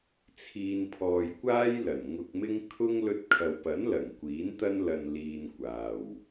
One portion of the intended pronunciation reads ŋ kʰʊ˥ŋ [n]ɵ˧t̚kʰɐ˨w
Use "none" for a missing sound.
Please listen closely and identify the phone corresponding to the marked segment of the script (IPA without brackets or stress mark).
l